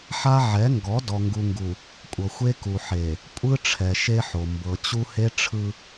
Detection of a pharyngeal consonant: present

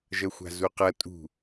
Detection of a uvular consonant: present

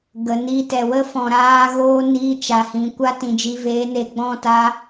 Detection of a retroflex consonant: absent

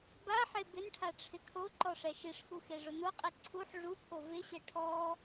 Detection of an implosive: absent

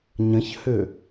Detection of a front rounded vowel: present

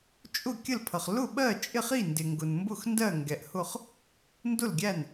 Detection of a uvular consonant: present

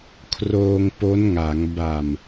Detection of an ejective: absent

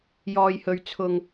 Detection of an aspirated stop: present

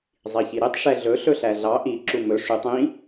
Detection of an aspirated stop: absent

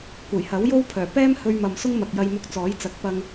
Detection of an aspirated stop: present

